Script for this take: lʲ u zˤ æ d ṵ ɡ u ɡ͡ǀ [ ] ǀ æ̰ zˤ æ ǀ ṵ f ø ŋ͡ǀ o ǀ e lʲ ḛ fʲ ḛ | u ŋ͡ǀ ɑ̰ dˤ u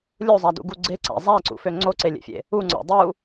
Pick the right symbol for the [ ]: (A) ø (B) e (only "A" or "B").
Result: B